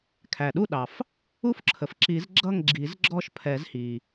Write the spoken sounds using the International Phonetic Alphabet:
kʰ æ˩ ɗ u˥˨ ɗ ɑ˩ f | u˥˨ f ǁʰ ə˩ f ǁ i˨˩˦ z ɡ͡ǁ ʌ˥˨ ŋ ɡ͡ǁ i˨˩˦ z ɡ͡ǁ ɔ˥˨ ʃ pʰ ɛ˨˩˦ z h i˩

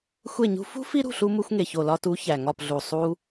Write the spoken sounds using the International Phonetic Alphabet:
xʷ e˦˨ ɲ ṳ˦ f ṳ˦ f i˦ ɾ ṳ˦˨ ɬ u˧ m u˧ xʷ ŋ e˨ ç o˨ l ɒ˧ t u˨˦ ç æ˨ ŋ ɒ˦˨ p ɮ u˨ sˤ u˧

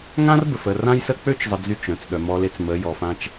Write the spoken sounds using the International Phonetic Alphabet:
ŋ ã˦ r b ə˨ f ə˦˨ r ã˦ j s ə˦ k͡p ø˦ t͡ʃ zˤ ə˨ d͡z y˦˨ t͡ʃ ɾ œ̃˨ t͡s ɗ œ˨ m ɔ˨ l e˨ t͡s m ə˨˦ j ɔ˨ f ã˦ t͡ʃ

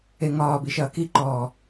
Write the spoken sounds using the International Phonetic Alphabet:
e ŋ ɒː b i ʃ ɐː k i ǃ ɔː

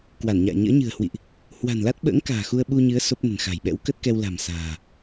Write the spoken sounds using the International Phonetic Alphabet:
k w a˧˩ n ɲ a̰ː˧˨ ɲ ə̰ː˧˥ ɲ ɨ̤˨˩ ə̯ h w ḭ˧˨ ʔ | h w a̤˨˩ n l a˦˥ t̚ ɓ ə̰ː˧˥ ŋ k a̤ː˨˩ x u˧ ə̯ ɓ u˧ ɲ ɨ˨˦ ə̯ s o˦˥ p̚ n ə̤˨˩ n x a̤˨˩ j ɓ ɛ̰˧˥ w k ə˦˥ t̚ k ɛ˧ w l a̤˨˩ m s a̤ː˨˩

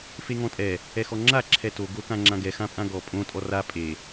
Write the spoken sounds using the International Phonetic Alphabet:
f e ŋ ɔ̃ tʼ ɛ | ɛ x ɔ ŋ͡ǁ a ǁʰ ɛ t o ɡ o k ã ŋ͡ǁ ã ɡ ɛ x ã pʼ ã ɡ ɔ pʼ õ tʼ ɔ r a pʼ e

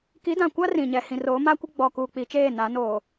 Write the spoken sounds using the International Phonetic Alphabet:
k i˨˦ d ã˨ kʷ a˦ r ĩ˨ ɲ ɛ˨ h ĩ˨ r oː˨˦ m a˦ kʷ ɪ˦ ɡ͡b ɔ˨ k uː˨ k͡p i˨ t͡ʃ eː˦˨ n a˨˦ n oː˨

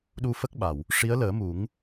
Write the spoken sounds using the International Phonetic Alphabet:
ɗ u˧ f ə˦˥ k̚ ɓ a˨˩˨ w | ʂ i˧˥ ə̯ l əː˨˩˦ m u˨˩˦ ŋ

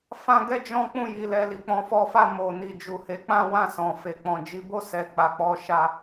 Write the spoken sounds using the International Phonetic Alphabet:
f ã˦ ɡ ɛ˦ d͡ʒ ɔ̃˦ k͡p ũ˦˨ j i˨ l ɛ˧ l i˨ k͡p ɔ̃˨˦ f ɔ˧ f a˧ m o˨ n i˨ d͡ʒ u˨ h e˨˦ k͡p ã˦ w ã˦˨ s ɔ̃˨ f e˨ k͡p ɔ̃˨ d͡ʒ i˨˦ b o˦˨ s ɛ˨ k͡p a˨ k͡p ɔ˨˦ ʃ a˧

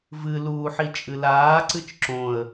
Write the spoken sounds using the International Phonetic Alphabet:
v ɨ l uː ħ i t͡ʃʼ ɨ l aː ǀ ɨ t͡ʃ ǁ õ ə̯

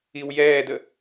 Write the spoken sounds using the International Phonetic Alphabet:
i w j ɛː d ə

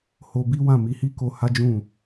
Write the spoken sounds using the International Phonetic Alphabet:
h o˧ b i˦ w ã˦˨ m i˧ h i˦ k o˧ h a˦ d͡ʒ ũ˦˨

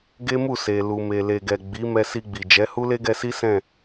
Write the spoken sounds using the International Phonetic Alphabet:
ɡ e˦ m u˦˨ s e˨ l u˨ m e˨ l e˨ ɡ ɛ˨ ɡ͡b i˨˦ m ɛ˧ s i˧ ɡ͡b i˨ d͡ʒ ɛ˨˦ h u˦ l e˦ ɡ ɛ˧ s i˦ s ɛ̃˦˨

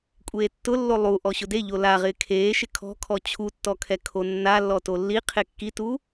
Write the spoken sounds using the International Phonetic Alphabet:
kʷʼ eː tː ʊ lː o lˠ u ʔ ɔ ɕ ʊ d e ʎ o l a ʁ ɪː kʰ eː ʃ ɪ kʰ ɔ̤ kʰ ɔ t͡ɕʰ u tː ɔ kʰ ɛ kʰ o nː a lː ɔ t o lː i qʰ e kː i t u

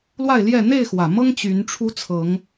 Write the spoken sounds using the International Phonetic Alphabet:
l w a˥˨ ɪ̯ l j ɛ˥˨ n̪ e˥˨ ɪ̯ x w ä˨˩ m ɤ˦ ŋ t͡ɕ y˨˦ n ʈ͡ʂʰ u˦ t͡sʰ ɤ˨˦ ŋ

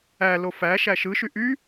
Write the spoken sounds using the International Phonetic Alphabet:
æ l o f æ ʃ æ ʃ ɯ ʃ y ʔ y

